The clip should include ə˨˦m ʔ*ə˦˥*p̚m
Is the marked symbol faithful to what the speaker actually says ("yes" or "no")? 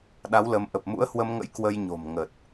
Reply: no